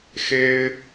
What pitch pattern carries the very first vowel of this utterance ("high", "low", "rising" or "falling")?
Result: high